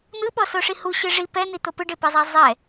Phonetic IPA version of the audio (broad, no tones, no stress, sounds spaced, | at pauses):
n̪ ɯ ɓ ɔ s o ʂ i h u ɕ ɯ ʐ i p ɛ n̪ i t̪ o p ɯ ɖ e p i zˤ a zˤ ɛ